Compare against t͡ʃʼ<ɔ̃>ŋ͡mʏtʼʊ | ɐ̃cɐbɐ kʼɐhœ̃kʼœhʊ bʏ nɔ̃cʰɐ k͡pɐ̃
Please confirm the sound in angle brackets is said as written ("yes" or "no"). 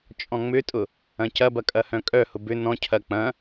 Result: yes